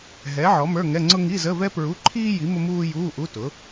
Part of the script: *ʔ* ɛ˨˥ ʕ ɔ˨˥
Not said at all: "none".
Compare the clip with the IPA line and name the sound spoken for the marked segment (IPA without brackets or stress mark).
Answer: ɦ